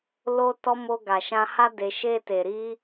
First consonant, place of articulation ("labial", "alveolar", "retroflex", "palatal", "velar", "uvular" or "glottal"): alveolar